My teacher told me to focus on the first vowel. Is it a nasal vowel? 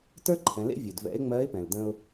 no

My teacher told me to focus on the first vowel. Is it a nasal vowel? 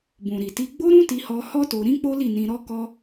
yes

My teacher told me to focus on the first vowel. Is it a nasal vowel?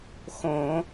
yes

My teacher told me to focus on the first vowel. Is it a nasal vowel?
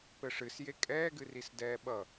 no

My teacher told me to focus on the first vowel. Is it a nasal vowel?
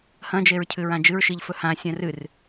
yes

